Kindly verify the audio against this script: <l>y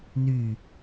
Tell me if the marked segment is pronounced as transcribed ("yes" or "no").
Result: no